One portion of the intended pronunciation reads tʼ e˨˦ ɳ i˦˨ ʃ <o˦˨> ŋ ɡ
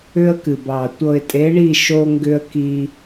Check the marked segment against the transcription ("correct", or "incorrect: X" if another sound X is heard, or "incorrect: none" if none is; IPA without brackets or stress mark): incorrect: o˦